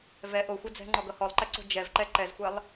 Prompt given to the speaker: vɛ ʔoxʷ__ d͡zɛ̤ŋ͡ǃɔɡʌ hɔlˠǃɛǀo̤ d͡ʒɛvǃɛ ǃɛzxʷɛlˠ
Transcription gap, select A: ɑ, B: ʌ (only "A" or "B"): B